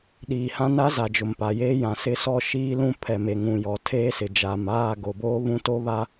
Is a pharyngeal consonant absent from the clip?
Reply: yes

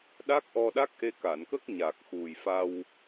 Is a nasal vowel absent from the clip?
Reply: yes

